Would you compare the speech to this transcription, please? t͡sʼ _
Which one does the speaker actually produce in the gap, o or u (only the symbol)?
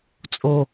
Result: o